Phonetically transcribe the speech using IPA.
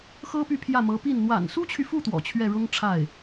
x ɤ˥ p y˥˧ pʰ j ä˥˩ m ɤ˧˥ p i˥˩ n n̪ w a̰˨˩ n s u˥ t͡ɕʰ y˨ f u˥˩ t̪ w ɔ̰˨˩ t͡ɕʰ ɥ ɛ˥˩ ɻ ʊ˥ ŋ ʈ͡ʂʰ a˥˩ ɪ̯

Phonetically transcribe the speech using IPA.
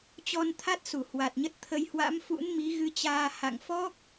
t͡ɕ ɔ˧ n t̪ʰ a˦˥ t̚ s u˧˩ h w a˨˩ t̚ ɲ ə˦˥ t̚ t̪ʰ ə˧ j h w a̰˧˥ m f ṵ˧˥ n m i˨˦ ɣ ɨ˧ t͡ɕ aː˧ h a̰˧˨ ŋ f ɔ˦˥ k̚

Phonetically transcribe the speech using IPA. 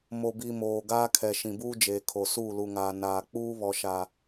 m o˨ b i˨ m oː˨ ɡ aː˦ kʰ ɛ˨ ʃ ĩ˨ b uː˦ d͡ʒ eː˨ kʰ o˨ s uː˦˨ l u˨ ŋ aː˨ n aː˨ k͡p uː˦ β ɔ˨ ʃ a˨

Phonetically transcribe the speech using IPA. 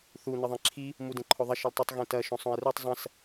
θ u n ɨ ðˤ ẽ ǁʰ i | m u d ẽ ǃʰ o ðˤ ɐ ʃ ɨ l tˤ ɨ tˤ ɣ ẽ t ɐ ʃ õ sˤ õ e̯ r u tˤ zˤ ɐ̃ s

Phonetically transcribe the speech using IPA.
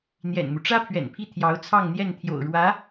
n̪ j ɛ̰˨˩ n m u˦ ʈ͡ʂ ä˥ pʰ ɥ ɛ̰˨˩ n pʰ i˥˩ t̪ʰ j ɑ˧˥ ʊ̯ t͡sʰ ɑ˥˧ ŋ n̪ j ɛ˥˩ n t̪ʰ j o̰˨˩ ʊ̯ ɻ w ä˧˥

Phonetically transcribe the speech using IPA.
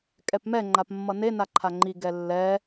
kʼ ɛ p m ɛ ŋ͡ǃ a p mː ʌ n e n a ǃʰ a ŋ͡ǃ i ɡ ɛ lː ɛ

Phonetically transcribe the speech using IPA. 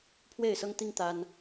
pʰ w e˥˨ ɪ̯ s ɤ˦ ŋ t̪ i˦ ŋ t̪ a˦ n

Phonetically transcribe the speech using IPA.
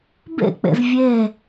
b ḛ k͡p ḛ z vʲ e

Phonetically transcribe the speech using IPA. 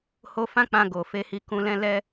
h o˧ f ã˦ k͡p ã˧ ɡ o˨ f e˧ h i˧ k ũ˧ l ɛ̃˦ l ɛ˧

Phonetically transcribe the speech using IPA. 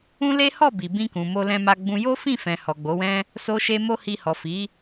ũ˦ l e˦ h ɔ˦˨ b i˨ b ĩ˧ k ũ˨ m o˧ l ɛ̃˧ m a˧ ɡ͡b ũ˧ j o˦ f ĩ˦˨ f ɛ̃˨ h ɔ˨ ɡ͡b o˨˦ w ɛ̃˦ | s o˦ ʃ e˦ m o˦ h i˧ h ɔ˨ f i˨˦

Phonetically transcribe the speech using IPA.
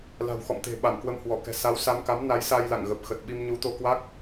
l a̤˨˩ w x ɔ̰˧˨ m t̪ e̤˨˩ ɓ a˧˩ m k w ə˧ m h w ɔ˧˩ k ɛ̤˨˩ s a˨˦ w s a˧ m k a˨˦ m n a˨˦ j s a˧ j l a̰˧˨ ŋ ɣ ə˨˩ p̚ x ə˨˩ t̚ ɓ i˧ m ɲ u˨˦ t̪ o˧ k w a˦˥ k̚

